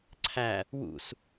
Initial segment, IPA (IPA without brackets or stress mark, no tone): ǀʰ